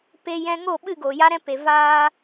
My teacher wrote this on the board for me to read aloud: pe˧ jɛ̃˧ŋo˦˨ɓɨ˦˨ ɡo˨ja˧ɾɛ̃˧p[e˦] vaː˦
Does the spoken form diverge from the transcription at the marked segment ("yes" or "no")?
yes